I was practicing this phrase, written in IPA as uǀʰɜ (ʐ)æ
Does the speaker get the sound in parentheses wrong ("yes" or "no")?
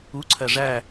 no